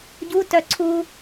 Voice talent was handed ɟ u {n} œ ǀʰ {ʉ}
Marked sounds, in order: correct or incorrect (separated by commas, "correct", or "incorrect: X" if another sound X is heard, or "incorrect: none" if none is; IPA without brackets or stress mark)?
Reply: incorrect: t, incorrect: u